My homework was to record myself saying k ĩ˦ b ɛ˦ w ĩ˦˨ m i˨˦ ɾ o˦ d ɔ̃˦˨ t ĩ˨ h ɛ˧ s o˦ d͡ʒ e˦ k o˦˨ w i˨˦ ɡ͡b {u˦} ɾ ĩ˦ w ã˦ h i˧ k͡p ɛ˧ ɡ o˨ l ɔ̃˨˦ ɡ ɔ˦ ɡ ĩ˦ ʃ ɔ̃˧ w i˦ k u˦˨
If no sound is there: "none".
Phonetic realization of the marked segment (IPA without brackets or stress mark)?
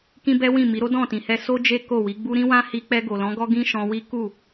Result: u˦